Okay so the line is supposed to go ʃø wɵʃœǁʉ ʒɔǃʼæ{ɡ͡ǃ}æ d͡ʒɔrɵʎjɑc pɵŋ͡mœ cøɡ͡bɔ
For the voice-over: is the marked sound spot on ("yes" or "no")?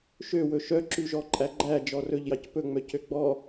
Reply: yes